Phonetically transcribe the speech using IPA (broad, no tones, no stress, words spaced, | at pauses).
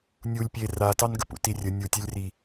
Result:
nʲulʲ pʲe ratɑnɡəp ṵtirʲə nʲutʲɛlʲri